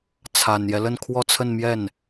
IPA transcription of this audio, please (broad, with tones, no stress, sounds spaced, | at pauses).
t͡sʰ a˨˩ n j ɛ˦ l ə˥˧ n kʰ w ɔ˥˧ t͡sʰ ə˥˧ n m j ɛ˥˩ n